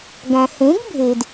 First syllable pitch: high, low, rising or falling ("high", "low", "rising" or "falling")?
low